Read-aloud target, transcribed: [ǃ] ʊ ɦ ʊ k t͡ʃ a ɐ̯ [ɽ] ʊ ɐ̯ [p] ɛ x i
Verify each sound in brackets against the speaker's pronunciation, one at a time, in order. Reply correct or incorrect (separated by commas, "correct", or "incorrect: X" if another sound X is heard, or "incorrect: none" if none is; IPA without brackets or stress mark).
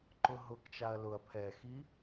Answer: correct, incorrect: l, incorrect: pʰ